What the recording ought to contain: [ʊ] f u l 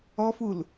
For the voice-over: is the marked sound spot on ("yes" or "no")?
no